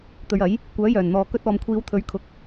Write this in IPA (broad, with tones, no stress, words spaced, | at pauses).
t̪ɵ˨˧ɥɐ˨˥j | kʷœː˨˥jœː˨˩nn̪ɔː˨ kɵ˧t̚ ɔː˨mkʷʰiː˨˧wt̪ʰɵ˨˥ɥ kʰʊ˧k̚